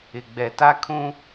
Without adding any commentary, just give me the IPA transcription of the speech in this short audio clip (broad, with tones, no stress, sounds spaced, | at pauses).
ɪ˨ ɡ͡b ɛ˨ t a˦ kʰ ũ˦